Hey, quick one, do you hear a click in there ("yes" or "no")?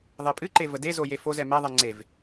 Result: yes